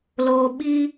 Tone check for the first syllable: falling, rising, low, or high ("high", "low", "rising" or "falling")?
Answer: low